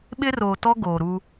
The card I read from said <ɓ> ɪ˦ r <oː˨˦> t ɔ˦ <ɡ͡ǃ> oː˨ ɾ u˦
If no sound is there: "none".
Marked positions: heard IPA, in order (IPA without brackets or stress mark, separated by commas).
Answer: ɓ, oː˨, ɡ